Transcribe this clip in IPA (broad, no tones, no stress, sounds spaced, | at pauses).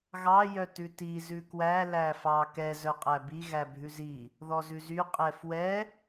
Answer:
ɣ ɑ j œ t ʉ t i z ʉ k w æ l æ f ɑ k ɛ z œ qʼ æ b i ɣ æ bʱ ʉ z i | ð ɔ z ʉ z y qʼ ɛ f w ɛ